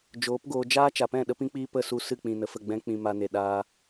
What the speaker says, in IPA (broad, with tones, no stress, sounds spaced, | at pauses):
d͡ʒ oː˨˦ p ɡ oː˧ d͡ʒ aː˦ t͡ʃ a˨ p ɛ̃˦˨ ɗ ə˧ p ĩ˧ k͡p iː˧ p ə˦˨ s u˧ s ɨ˦˨ k͡p ĩ˨ n ə˨ f ə˦˨ ɡ͡b ɛ̃˦ k͡p ĩ˧ m a˧ n e˨ ɗ aː˧